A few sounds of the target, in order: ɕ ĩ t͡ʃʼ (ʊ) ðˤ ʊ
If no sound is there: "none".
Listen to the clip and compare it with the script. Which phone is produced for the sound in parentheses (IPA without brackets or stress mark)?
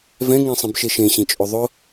ʊ